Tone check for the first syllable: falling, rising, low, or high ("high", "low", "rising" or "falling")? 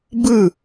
falling